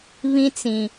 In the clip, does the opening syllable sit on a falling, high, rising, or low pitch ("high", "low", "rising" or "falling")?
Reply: high